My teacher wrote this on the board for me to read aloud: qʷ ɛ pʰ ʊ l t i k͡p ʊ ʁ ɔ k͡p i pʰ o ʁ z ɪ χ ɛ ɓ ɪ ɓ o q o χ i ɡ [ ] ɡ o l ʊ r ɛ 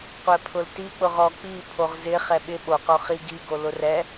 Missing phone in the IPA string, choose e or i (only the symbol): i